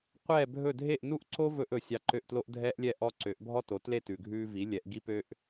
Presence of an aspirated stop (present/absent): absent